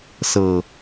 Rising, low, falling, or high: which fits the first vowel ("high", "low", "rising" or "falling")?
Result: low